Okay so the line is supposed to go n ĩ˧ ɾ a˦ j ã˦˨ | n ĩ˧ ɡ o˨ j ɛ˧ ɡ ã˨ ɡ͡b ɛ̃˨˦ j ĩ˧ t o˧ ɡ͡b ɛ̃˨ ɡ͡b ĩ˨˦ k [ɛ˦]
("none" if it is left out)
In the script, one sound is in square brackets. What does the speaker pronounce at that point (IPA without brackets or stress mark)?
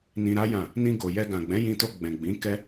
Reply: ɛ˦